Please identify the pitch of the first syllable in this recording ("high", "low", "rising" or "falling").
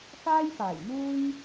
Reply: high